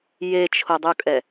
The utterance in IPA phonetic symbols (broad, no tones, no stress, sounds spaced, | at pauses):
j e t͡ʃʰ o dˤ u kʼ ɛ